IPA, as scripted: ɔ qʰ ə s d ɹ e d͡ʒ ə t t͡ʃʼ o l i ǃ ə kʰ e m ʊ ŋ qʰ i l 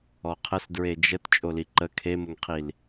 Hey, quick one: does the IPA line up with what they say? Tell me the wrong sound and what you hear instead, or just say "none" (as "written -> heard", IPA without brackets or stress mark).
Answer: none